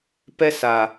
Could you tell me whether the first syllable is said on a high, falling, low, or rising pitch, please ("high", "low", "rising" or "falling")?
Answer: high